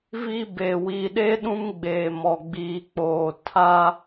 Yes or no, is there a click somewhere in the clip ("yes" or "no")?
no